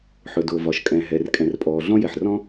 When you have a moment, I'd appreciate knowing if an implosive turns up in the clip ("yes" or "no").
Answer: no